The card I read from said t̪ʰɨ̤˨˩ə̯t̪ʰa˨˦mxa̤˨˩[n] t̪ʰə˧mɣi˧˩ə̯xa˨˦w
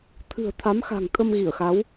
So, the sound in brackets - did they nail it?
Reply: no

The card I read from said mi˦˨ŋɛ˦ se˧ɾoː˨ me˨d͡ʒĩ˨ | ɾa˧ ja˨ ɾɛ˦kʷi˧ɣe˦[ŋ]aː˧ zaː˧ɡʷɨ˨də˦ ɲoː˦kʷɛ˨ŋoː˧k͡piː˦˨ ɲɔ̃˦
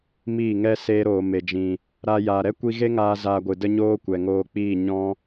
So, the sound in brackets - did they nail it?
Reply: yes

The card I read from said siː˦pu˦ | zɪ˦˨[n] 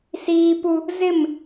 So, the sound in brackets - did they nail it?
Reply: no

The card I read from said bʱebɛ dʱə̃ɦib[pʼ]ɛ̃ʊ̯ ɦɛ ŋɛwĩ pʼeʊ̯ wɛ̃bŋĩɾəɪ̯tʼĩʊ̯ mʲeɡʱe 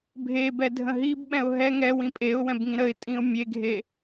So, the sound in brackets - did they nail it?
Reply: no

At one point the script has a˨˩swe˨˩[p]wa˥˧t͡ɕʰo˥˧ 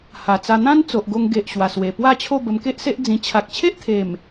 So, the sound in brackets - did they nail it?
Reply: yes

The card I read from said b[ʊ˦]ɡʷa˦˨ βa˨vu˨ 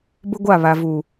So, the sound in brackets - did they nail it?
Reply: yes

